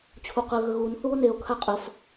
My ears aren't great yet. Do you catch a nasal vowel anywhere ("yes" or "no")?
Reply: no